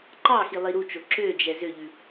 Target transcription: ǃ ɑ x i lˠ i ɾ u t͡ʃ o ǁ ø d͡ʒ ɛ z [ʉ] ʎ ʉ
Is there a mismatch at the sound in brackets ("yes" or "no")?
yes